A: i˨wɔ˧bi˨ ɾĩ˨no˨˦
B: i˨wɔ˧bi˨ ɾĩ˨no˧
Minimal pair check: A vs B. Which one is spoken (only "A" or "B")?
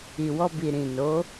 A